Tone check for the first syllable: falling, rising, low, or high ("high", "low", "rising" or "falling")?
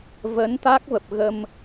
rising